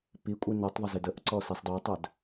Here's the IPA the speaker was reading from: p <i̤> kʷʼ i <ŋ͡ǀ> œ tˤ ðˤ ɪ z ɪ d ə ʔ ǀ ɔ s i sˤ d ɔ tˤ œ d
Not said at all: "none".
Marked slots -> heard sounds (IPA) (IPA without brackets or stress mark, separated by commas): i, n